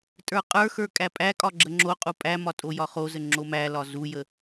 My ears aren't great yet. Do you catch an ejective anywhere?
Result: yes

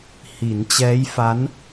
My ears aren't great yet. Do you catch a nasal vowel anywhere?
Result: no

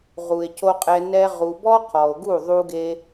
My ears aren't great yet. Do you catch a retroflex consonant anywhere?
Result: no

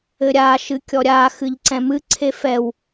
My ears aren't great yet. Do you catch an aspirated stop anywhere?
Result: yes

